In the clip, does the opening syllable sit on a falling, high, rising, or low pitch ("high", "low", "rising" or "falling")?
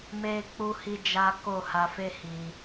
high